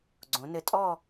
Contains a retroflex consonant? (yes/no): no